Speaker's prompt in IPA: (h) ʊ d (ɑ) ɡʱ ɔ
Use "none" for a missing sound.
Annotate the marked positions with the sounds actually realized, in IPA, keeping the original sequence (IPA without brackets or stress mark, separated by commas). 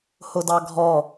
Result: h, ɑ